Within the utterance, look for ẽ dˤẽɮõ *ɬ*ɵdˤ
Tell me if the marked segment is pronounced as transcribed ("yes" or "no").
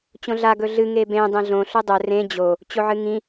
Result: yes